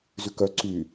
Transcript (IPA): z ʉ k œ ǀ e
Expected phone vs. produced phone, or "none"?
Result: e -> y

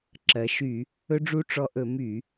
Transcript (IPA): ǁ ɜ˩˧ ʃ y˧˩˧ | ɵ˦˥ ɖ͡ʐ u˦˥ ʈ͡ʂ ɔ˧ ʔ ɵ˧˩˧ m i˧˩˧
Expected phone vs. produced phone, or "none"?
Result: i˧˩˧ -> y˧˩˧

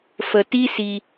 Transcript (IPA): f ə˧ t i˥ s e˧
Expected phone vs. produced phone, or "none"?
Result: e˧ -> i˧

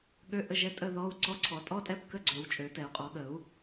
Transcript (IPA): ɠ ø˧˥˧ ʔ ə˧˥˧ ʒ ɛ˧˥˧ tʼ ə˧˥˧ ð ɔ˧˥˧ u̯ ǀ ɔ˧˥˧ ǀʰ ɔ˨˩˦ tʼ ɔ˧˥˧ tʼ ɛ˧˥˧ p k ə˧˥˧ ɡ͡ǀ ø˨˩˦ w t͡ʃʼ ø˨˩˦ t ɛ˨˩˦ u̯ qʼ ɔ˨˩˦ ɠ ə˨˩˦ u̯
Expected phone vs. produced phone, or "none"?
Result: none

